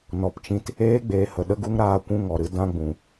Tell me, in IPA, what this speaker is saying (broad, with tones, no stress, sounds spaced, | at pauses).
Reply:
n ɔ˨ p t͡ʃ ĩ˧ t | eː˦ ɡ͡b eː˨ h ə˨ ɗ ə˦ ɡ u˦ ŋ ɾ aː˧ kʷ ũ˧ ŋ ɔ˨ ɾ ɨ˧ d ã˧ ɡ͡b ũ˨